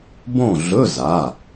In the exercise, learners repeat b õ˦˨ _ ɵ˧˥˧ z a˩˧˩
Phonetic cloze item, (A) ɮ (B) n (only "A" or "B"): A